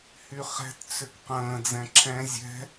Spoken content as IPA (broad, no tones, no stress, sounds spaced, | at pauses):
h y χ ɛ̤ t t͡s ʏ k q ə̃ː d͡z ɛ̃ ǁʰ ɛ̃ zʲ ɛ̤